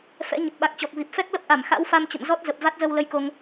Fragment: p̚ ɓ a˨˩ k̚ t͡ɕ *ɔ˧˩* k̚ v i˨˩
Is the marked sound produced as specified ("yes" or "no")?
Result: no